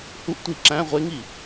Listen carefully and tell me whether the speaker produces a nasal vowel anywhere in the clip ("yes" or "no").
yes